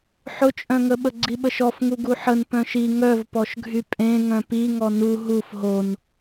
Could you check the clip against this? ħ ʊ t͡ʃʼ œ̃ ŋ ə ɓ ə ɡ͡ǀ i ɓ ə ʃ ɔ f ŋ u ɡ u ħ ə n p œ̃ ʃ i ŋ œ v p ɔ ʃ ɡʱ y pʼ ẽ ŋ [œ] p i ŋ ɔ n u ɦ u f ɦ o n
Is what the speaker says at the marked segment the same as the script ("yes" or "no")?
no